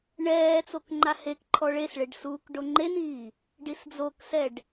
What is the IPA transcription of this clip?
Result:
ɳɛːt͡sok ŋ͡ǃahekǃʰɔ ɭesɭeɖ suːkɖoŋ͡ǃeniː | ɖisd͡zoksɛɖ

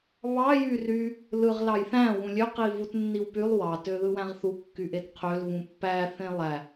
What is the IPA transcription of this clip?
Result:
βɑ jyry | lɯʁ lɑjθæ̃ wũlʲø qivut nːiwpylˠ wɑ tøðɯwæ̃ʁθu kːyʔetqʰøl vũpːæ θẽlˠæ

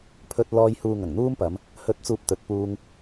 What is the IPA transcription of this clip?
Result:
pʰɵ˧t̚ lɔː˧j huː˨ ŋɐ˨˩ŋn̪uː˥mpɐ˨˧m | hɵ˨t̚t͡suː˨p̚ t̪ɵ˨t̚puː˧ŋ

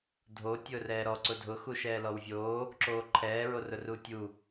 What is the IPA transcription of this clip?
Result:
dʱo tʲʊːrɛːɾɔ ǀʊdʱʊ xuʃɛːlɔwvʲoː | ǁoːǃʰɛː ɹorʊrutʲu

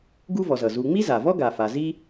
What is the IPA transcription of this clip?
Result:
ɡu˥vɔ˨zʌ˩ zu˨ŋ͡mi˥za˩vɔ˥ ɡa˨fa˨ zi˦

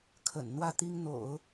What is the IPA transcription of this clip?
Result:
kʰə̰˨˩nn̪wä˥˩t̪i˥ŋn̪o̰˨˩˦ʊ̯

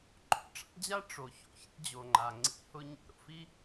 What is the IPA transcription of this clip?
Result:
ǃo̰˧ʈ͡ʂa̰˥d͡ʑa˥ ʈ͡ʂo˩ ço̰˩çḭ˧ d͡ʑo˩ŋ͡ǃa˩ŋ͡ǀḭ˧ hʊ˧ɲɛ̰˧ɾo̰˧f i˥

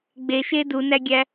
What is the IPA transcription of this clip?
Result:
ɡ͡beʃe dunæɡʲæ

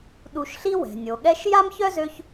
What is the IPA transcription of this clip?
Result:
ɗu˨ʃɬi˦wɛ̤˩ nʲo˩ɠɛ˦ʃ ja˥mçœ˥zø˦ç

